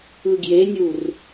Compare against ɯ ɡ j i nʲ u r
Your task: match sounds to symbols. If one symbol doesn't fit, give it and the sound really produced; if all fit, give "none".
i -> e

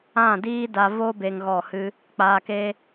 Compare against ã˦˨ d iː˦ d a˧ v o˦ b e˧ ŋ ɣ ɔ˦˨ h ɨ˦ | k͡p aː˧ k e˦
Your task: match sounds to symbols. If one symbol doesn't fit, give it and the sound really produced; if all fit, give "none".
none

